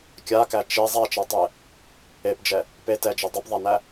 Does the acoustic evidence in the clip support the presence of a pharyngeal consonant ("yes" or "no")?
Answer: no